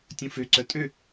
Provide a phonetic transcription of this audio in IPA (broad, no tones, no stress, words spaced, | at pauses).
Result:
tʲũføǀœ tʼø